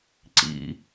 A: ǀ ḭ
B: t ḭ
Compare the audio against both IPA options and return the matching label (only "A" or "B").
A